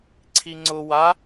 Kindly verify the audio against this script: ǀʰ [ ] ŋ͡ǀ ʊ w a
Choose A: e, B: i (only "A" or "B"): B